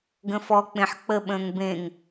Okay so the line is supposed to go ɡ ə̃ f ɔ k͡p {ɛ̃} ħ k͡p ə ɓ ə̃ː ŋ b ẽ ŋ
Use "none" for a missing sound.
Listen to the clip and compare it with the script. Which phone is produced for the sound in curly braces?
ẽ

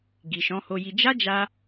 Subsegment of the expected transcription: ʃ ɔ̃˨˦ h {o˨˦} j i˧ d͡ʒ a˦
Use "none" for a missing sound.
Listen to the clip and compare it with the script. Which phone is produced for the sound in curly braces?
o˧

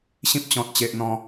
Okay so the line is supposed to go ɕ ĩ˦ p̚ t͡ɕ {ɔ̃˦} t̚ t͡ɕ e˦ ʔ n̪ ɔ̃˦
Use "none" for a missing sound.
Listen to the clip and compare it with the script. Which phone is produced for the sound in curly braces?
ɔ̃˦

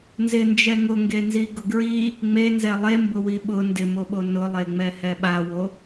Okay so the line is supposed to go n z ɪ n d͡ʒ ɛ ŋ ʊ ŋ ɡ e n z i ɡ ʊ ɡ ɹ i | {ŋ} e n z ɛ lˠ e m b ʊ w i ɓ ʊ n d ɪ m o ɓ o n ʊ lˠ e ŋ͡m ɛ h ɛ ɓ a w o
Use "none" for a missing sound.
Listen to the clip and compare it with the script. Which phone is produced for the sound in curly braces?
ŋ͡m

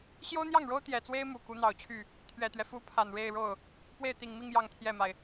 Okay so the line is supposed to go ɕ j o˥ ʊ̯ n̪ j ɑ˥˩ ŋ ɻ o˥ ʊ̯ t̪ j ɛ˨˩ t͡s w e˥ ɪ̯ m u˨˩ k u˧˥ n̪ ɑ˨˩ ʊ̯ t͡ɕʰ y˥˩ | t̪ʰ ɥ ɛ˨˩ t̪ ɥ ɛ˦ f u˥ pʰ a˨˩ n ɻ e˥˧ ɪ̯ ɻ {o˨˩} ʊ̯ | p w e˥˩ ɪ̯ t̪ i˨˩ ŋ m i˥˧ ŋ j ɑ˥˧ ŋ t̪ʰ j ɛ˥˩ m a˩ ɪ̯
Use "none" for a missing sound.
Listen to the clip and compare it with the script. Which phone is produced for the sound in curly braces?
o˥˩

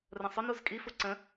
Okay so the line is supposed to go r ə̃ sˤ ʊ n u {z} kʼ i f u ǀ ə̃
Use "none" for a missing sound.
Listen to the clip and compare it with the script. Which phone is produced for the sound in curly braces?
z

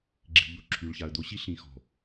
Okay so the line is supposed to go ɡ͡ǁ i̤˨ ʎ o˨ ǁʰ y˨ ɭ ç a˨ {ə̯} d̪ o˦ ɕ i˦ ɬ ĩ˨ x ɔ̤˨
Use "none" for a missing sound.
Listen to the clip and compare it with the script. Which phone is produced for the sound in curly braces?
ə̯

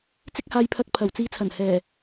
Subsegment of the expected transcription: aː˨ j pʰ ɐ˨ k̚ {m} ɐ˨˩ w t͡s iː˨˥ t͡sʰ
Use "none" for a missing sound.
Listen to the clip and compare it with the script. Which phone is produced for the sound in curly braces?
pʰ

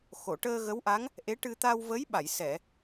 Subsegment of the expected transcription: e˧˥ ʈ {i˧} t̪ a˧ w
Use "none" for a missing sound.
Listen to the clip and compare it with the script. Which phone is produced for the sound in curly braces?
ɨ˧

